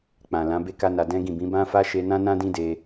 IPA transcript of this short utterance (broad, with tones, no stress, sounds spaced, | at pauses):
k͡p ã˨ l ã˨˦ b e˦ k a˦ n a˧ d ɛ̃˦ ɡ ĩ˦˨ b ĩ˨˦ b ã˦ f a˦ ʃ e˦ n ã˦ n ã˦ d ĩ˦ d e˧